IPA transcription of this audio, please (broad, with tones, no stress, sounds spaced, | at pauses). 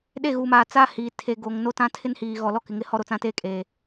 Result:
ɗ e˦˨ ɣ uː˨ m aː˨ t͡s a˦ h iː˨ tʰ e˨ ɡ o˨ ŋ n o˦ t ã˦ tʰ ɪ˦ n h iː˨ ɣ ɔ˨ l ɔ˦ k ɪ˨ ŋ ɪ˦ h ɔ˦ ɾ o˨ t͡s ã˦ t eː˦ kʼ eː˨